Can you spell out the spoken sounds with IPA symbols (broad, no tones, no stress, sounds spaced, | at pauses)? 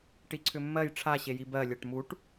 ʈ i ǀʰ ʏ mː ɜ j ʈ͡ʂʰ a ɕ e j i b ɜ lʲ ɜ ʈ m u ʈ